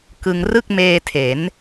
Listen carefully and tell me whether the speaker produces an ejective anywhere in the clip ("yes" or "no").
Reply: no